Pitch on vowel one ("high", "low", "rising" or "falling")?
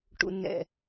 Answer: low